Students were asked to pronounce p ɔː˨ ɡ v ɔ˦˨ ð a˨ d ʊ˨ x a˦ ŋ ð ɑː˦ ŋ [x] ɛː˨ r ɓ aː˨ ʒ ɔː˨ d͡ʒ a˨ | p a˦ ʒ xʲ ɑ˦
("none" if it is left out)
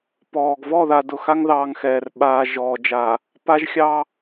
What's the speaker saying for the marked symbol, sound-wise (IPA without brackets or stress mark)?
x